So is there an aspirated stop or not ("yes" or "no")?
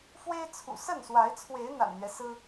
yes